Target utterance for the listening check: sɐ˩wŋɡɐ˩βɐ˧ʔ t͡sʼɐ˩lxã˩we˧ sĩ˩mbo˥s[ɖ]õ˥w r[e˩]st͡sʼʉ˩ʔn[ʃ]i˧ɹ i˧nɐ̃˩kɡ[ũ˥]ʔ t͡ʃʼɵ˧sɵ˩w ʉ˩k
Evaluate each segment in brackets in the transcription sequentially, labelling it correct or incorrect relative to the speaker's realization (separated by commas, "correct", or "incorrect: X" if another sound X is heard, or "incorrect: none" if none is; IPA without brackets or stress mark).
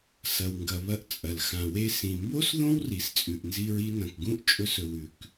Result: incorrect: ð, incorrect: i˩, incorrect: z, correct